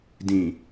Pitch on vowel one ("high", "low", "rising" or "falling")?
low